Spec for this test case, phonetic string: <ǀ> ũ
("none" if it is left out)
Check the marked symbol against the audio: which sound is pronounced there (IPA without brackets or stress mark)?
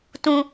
t